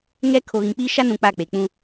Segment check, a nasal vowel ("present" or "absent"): present